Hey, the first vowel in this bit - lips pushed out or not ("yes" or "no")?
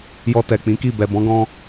yes